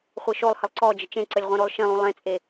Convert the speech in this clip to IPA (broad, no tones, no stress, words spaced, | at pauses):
χʷɤʃolˠhəlˠ ǀɔ d͡ʒət͡ʃẽǀəlʲ ʁʷẽɾolˠʃĩlˠũ lˠẽt͡sʼe